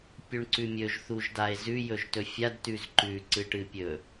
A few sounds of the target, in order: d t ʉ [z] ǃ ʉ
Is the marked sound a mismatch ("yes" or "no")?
no